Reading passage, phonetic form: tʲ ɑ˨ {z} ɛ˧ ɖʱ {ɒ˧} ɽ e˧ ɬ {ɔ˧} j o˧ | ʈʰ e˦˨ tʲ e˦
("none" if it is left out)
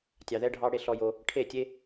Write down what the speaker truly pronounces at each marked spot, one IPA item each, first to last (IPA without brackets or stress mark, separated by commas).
ð, ɑ˧, ɔ˧